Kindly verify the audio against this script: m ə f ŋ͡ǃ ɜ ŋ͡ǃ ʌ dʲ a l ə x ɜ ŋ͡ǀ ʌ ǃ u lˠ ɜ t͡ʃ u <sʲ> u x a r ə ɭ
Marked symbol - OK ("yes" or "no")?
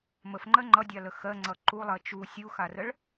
yes